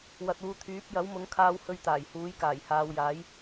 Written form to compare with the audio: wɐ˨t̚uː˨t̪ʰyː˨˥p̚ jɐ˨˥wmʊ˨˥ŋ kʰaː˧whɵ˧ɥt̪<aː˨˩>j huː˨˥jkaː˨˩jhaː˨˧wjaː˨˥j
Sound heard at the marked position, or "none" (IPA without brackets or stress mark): aː˨˩